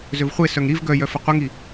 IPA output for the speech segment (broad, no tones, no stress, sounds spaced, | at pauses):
z ø v χʷ e s œ ŋ ɾ i v ɡ œ j œ f ə qʷ ə ŋ i